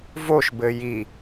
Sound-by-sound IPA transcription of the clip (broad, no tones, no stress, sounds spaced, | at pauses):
v o ʃ b ɘ j i